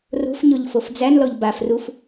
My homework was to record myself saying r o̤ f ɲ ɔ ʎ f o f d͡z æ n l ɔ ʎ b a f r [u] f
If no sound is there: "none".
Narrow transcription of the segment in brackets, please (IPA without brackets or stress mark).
u